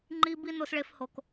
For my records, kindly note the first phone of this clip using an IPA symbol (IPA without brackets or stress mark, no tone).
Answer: ŋ͡ǃ